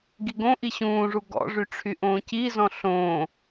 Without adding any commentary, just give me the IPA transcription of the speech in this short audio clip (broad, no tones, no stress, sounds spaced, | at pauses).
ɡ i ɡ õ ʔ i ɕ ũː ʐ u ɡ ɔ̰ ʐ y ʈ͡ʂʰ y ʔ õː c i z ɔ̃ ɬ õː